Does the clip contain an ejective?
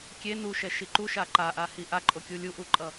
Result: yes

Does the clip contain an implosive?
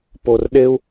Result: yes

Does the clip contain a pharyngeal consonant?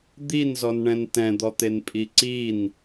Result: no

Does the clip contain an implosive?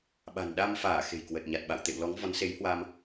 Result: yes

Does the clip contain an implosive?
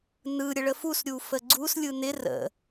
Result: no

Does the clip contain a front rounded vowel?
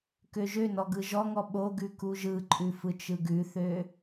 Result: yes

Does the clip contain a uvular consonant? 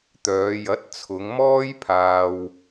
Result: no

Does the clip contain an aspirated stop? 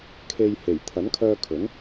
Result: yes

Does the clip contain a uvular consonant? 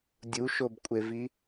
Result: no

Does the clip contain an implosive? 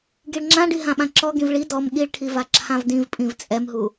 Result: yes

